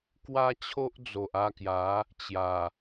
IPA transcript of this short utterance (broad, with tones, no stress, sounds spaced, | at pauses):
k w a˦ t͡ɕʰ o˦ ʔ d͡z o˨ ʔ a˥˧ k j a˨˦ | t͡ɕ j a˨˩